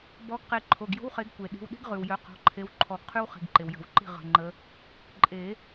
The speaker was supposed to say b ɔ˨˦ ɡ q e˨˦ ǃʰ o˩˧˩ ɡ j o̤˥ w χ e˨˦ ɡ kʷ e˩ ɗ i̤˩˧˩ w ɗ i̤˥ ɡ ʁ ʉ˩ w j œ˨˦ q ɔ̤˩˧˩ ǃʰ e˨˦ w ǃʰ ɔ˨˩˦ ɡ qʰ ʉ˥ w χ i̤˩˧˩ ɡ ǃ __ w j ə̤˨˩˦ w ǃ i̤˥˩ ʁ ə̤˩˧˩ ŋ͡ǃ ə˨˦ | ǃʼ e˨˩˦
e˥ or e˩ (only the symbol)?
e˩